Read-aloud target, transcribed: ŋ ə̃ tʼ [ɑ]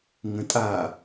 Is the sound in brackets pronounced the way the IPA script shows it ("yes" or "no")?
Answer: no